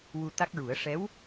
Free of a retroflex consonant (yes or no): no